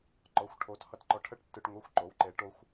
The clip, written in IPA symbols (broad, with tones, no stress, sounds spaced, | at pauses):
ǃ ɔ˨˥ xʷ ʈʰ o˨˥ t h ʌ˧ t ǃ ɔ˧ ʈʰ ə˦˥ ʈ tː ɯ˧ ʈ ŋʷ ʌ˧˥˧ xʷ ǃ o˨˥ w ǃ e˨˥ ʈ o˦˥ xʷ